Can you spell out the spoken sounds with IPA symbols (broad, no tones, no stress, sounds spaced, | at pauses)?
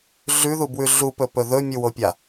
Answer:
ɮ ʉ ð u b w ʉ ɮ u p ɵ p ɵ ð ɵ mʲ u w o pʲ a